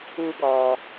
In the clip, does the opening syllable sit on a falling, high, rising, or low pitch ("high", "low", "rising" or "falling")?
high